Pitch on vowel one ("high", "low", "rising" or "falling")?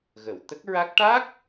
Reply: low